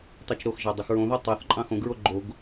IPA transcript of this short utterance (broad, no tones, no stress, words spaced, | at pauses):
tˤit͡ʃɾoxʒɑ dˤyxɹõðo tˤɑθ ǃʼɑ̃xõɡɹo ɡ͡ǃoɡ